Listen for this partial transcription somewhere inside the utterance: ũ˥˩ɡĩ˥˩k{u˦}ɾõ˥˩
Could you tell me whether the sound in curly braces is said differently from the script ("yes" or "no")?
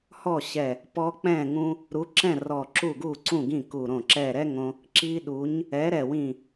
yes